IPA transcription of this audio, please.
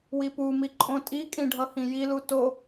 wipumi ǃʼõtʼikʼĩ ɖʱʌhĩjilu to

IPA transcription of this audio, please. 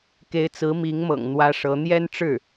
ke˧˥ɪ̯t͡sɹ̩˧˥mi˧˥ŋmɤ̰˨˩ŋ n̪wä˥ʂɤ˧˥ n̪jɛ˥nʈ͡ʂɻ̩˥˩

